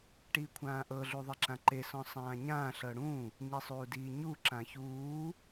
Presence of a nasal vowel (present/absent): present